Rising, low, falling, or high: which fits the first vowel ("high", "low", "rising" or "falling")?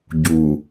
low